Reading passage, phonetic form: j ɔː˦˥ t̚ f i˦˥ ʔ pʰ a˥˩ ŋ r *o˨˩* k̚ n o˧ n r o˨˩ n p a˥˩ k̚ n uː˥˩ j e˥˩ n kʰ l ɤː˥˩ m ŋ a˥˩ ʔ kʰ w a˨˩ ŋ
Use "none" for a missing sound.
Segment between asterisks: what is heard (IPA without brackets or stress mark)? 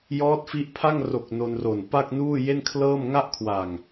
o˨˩